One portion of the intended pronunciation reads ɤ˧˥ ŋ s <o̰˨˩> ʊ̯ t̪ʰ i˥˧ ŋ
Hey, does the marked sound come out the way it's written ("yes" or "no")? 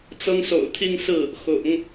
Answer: yes